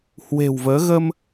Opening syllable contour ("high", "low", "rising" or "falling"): low